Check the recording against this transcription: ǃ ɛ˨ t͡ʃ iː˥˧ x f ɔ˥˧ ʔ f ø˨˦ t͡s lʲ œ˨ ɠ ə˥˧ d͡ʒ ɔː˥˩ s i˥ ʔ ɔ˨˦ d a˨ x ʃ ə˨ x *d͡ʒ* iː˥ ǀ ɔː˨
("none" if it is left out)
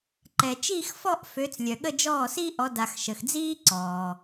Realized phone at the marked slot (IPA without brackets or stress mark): d͡z